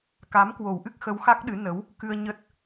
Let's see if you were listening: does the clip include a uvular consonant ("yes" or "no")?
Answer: no